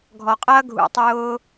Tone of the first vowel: low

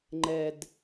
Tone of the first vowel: low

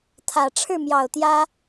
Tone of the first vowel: low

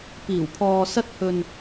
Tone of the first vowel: low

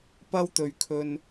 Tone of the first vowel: high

